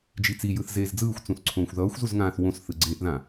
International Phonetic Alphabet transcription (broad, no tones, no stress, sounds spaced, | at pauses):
d͡ʒ i t͡s i j ɯ θ z eː z d͡z ɯː xʷ t͡s ũ θ ǀʰ õː xʷ ð ʌː xʷ z u z ŋ ãː θ w õ s θ ɯ ɡ͡ǀ e ʔ ð ã